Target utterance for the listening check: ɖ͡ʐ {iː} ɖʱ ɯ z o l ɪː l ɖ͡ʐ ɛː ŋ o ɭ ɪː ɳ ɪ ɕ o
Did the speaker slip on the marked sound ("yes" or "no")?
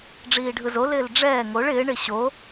no